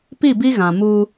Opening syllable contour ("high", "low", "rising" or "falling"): falling